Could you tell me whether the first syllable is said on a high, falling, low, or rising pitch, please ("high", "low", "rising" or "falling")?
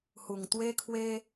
low